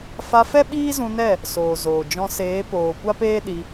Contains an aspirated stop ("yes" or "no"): no